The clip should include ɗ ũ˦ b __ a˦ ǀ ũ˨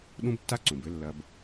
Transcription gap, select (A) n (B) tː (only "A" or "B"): B